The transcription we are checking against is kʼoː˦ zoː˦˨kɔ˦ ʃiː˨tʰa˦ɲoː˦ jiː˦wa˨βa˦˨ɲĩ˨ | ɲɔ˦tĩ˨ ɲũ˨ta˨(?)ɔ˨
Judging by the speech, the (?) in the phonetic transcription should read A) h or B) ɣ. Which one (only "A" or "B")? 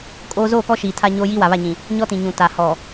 A